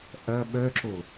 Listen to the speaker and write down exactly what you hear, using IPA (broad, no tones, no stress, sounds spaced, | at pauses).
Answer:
ʔ ɐ ɓ œ ǁ o